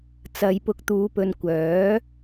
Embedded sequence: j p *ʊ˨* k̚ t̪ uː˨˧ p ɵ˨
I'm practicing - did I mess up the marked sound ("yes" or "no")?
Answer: no